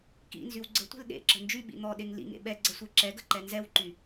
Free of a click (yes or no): no